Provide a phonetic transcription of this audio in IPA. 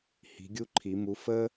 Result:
h i̤˨˦ ɡʲ u˦ ǃʰ i˨˩˦ m u˨˦ f ə˦

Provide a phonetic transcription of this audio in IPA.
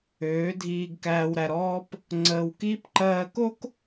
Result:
øː˨˦ dʱ iː˧ ɡ k æː˧ w ɾ æ˧ ɾ ɔː˦ p | ŋ͡ǀ əː˧ w k iː˦ p ǃ ɜː˧ k o˦ k

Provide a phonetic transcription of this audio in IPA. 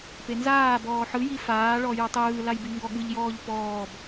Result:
p e n z aː b ɔː ħ ɯ j i f aː ɭ ɔ j ɯ tˤ ɯː l a j b i ŋ ɡ ɔ ɠ ɯ ʎ j ɔː ʎ p ɔː b

